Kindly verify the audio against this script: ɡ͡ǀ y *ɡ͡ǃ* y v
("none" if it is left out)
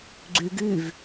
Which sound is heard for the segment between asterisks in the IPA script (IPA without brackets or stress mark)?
ɡ